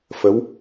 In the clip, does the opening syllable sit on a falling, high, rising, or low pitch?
rising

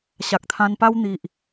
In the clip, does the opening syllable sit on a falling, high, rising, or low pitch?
low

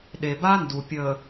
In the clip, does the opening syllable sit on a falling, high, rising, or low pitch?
low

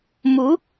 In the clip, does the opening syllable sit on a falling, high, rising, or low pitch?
rising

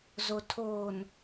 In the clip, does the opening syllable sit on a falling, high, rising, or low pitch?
low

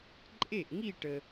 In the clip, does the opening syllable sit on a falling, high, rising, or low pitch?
falling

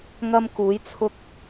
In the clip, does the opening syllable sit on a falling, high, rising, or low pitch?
high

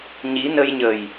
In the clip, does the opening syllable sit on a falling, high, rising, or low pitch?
rising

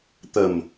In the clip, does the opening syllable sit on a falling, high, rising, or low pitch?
low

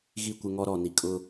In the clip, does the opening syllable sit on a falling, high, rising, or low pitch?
falling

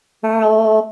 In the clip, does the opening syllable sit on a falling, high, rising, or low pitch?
high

